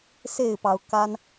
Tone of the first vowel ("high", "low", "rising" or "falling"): falling